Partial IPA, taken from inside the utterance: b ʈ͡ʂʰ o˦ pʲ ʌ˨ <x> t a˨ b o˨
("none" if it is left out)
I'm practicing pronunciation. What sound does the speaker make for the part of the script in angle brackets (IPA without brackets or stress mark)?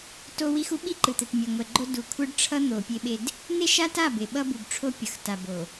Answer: x